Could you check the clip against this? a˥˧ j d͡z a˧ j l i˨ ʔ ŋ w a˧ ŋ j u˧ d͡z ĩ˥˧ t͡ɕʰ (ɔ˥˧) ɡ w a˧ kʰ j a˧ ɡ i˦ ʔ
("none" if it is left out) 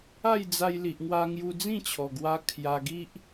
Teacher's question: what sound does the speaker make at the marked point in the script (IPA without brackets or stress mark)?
ɔ˨˩